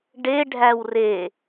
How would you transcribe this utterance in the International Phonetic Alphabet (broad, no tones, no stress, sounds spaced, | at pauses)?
ɖ e ɖʱ æ w r e